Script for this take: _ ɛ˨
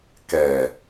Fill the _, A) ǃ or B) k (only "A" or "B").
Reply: B